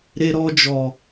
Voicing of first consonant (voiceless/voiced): voiced